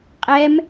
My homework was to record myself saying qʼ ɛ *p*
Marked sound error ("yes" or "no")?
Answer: yes